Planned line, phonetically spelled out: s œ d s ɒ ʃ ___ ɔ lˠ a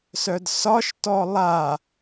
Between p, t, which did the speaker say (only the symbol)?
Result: t